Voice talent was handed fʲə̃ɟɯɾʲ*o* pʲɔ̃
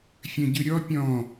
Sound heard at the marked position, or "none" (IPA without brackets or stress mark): ɔ